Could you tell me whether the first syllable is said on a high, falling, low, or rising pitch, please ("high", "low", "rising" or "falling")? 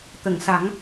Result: low